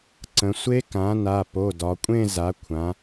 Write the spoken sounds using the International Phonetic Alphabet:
ǀ ə̃˩˧ sʷ e˦˥ k ã˩˥ n a˩˧˩ p o˩˧˩ d ɒ˩˧ kʷʼ ẽ˥˧ z a˩˥ kʷʰ ã˩˧

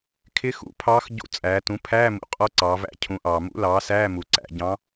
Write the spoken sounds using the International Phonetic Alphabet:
kʰ ɪ˧˥ x ṵ˩˥ pʰ ɑː˧˥ x ɟ ṵ˧˥ t͡sʼ æː˩˧ t ũ˩˥ pʰ æː˧˥˧ m ṵ˩ qʼ ɔ˧˥ ǀ ɑː˩˧ v æ̰˧˥ cʰ ũ˩˥ ʔ ɑː˩ m ṵ˧˥ l ɑː˩˥ s æː˧˥˧ m u˩ ǀ æ̰˩˧ ɟ ɑ̃˧˥

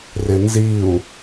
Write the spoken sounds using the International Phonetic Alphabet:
r ɪ n z i u̯

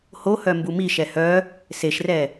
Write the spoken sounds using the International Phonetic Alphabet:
h o h œ m b u m i ʃ ɛ h œ | s e ʃ r ɛ

